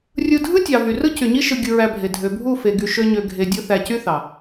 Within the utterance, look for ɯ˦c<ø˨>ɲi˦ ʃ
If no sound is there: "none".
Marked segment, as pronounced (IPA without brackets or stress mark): y˨